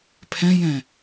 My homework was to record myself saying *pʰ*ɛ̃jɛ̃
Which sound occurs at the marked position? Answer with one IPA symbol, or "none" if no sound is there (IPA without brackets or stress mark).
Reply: pʰ